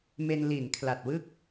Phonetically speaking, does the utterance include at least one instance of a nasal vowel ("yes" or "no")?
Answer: no